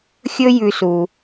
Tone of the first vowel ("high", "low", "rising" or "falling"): high